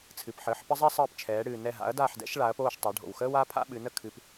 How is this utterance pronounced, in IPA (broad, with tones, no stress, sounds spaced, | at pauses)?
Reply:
t͡sʰ ɨ˩ p ħ əː˩˧ ħ p ə˥ zˤ ɛ˥ sˤ əː˦˨ p t͡ʃʰ ɛː˩˧ ɽ ɨː˩ n ɛ˦˨ ɦ a̰˨˥ ɐ̯ d aː˦˨ ħ d ɛ̰˨˥ ʃ ɭ a˩˧ ɐ̯ p oː˦˨ ʃ tˤ a˩˧ ɖʱ o̰˩ w x əː˥ w a˨˥ pʰ a̰˥ ɓ ɨ˩˧ n ə˥ kʰ ɨ˩˧ p